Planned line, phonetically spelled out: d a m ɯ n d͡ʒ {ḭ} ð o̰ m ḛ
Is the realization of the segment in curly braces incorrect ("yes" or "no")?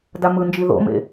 yes